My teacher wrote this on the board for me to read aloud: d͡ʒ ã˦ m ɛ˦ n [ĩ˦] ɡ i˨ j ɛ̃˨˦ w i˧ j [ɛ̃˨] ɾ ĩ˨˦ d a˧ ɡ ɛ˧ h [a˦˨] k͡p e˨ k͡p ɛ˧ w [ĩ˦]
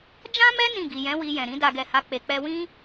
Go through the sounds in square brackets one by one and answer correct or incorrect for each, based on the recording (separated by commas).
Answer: incorrect, correct, incorrect, correct